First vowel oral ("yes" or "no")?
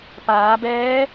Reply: yes